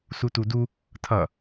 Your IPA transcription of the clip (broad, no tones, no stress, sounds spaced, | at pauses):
s u t u d u | tʰ ʌ